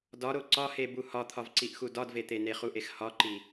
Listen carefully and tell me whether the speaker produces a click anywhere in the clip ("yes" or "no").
yes